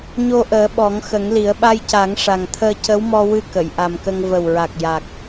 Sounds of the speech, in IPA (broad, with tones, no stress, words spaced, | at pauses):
ɲo˧ʔəː˨˩˦ ɓɔ˨˩˦ŋxə˨˩˦ŋli˨˩˦ə̯ ɓa˧jca˨˩˦ŋʂa˨˩ŋt̪ʰəː˧ cə˧˥wmɔ˧ wɨ˧ kə˨˩˨jʔa˨˩mkə˧ŋ və˨˩wɹa˨˩k̚ ja˨˩k̚